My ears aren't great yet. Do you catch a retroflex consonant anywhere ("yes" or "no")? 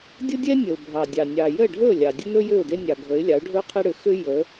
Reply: yes